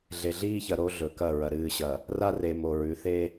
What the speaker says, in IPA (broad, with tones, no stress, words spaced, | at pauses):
ɮe˨ɮiː˦çɐ˨ ɾo˦ɮɵ˨kɐ˦˨ ɹɐ˨ɾɨː˨ɕɐ˨ | ra˦re˨ mo˨ɹʉ˨˦θe˦